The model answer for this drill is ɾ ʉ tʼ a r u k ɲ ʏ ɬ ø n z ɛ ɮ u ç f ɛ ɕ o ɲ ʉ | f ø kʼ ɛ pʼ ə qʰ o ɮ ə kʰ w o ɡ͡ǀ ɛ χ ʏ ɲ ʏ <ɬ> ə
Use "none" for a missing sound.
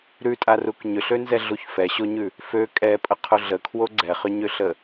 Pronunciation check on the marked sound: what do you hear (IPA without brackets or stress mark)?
ɬ